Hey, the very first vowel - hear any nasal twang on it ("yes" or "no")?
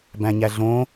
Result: yes